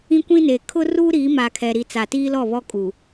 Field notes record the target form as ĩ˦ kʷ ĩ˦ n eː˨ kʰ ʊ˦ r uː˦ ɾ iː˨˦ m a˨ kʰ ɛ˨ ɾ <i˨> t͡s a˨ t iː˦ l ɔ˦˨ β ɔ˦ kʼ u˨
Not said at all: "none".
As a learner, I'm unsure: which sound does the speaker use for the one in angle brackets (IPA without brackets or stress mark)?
i˨